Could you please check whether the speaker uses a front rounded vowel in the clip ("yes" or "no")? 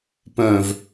yes